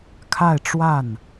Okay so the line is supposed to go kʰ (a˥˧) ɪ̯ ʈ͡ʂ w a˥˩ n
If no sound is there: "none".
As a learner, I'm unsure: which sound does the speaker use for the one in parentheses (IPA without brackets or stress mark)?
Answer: a˥˧